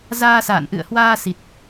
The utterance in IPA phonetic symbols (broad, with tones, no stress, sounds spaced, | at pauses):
z aː˧ s a̰ː˧˨ n ʔ ɨ̰˧˨ ə̯ h w aː˧ s i˨˩ t̚